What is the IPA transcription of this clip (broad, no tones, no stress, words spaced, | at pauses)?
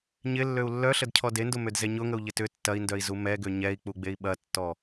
ɲɪlːøu̯ lːœɬədcʰɔ dendʊmødze ɲʊŋəu̯ʎɪ tʏ tːɐi̯ndœi̯zu mɛɡø ɲɛi̯k͡puɡ͡bei̯ ɓɐtːɔ